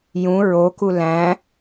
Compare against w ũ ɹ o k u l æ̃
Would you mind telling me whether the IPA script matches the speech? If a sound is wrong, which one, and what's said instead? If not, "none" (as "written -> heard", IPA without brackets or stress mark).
w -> j